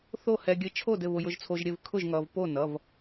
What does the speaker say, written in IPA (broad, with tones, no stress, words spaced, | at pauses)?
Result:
θo˥˨hɛ˧ ɡʲɘ˧t͡ʃʰo˥˨d ɘ˥˨βʊ˧jʊ˧ʒt͡sʰo˧ʒ ɾʲɘ˥˨v kʰʊ˥˨ʒ ŋʌ˧v po˥˨nʌ˩˧˩v